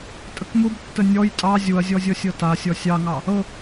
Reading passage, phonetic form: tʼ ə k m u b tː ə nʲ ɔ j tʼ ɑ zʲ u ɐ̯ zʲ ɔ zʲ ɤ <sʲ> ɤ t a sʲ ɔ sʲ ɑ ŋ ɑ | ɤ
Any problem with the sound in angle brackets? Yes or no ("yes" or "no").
no